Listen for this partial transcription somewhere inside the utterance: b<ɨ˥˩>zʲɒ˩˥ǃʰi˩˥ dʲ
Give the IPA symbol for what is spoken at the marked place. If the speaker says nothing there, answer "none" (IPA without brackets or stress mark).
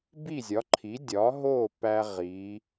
i˥˩